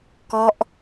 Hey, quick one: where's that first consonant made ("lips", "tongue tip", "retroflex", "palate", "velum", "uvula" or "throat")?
velum